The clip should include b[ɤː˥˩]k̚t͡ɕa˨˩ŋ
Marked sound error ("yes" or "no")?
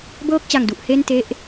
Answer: no